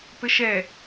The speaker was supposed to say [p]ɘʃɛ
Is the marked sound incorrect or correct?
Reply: correct